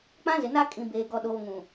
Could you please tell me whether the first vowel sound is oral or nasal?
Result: nasal